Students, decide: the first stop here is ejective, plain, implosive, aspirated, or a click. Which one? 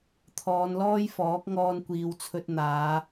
aspirated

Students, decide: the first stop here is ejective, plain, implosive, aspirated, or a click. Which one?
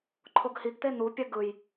click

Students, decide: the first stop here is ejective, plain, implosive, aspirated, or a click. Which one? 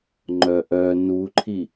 click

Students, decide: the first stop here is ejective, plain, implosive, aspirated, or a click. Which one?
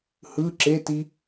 click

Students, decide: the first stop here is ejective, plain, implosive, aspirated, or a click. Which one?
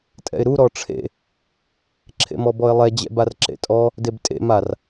ejective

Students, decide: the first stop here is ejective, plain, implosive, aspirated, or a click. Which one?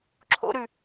click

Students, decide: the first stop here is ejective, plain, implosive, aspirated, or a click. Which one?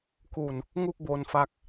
plain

